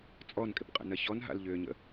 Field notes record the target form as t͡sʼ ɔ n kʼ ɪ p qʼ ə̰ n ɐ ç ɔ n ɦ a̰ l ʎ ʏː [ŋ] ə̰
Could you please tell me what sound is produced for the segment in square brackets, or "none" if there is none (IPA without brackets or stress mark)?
ɲ